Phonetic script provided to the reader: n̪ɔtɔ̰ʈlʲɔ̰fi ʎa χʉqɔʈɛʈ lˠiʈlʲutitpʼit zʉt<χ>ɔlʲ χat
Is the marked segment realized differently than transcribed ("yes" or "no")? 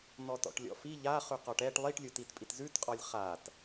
yes